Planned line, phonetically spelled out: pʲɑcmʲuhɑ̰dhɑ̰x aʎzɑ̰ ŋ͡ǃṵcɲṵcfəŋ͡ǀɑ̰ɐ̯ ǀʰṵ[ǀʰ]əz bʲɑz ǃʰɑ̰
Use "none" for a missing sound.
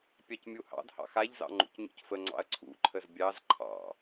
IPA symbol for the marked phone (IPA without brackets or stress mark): ǃʰ